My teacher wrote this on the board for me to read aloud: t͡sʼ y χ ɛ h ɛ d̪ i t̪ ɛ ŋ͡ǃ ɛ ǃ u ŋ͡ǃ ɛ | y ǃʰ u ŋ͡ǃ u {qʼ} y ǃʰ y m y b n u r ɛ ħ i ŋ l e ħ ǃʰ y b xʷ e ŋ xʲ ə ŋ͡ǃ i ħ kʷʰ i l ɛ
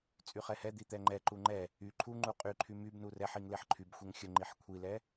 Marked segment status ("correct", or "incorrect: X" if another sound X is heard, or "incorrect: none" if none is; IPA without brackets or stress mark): correct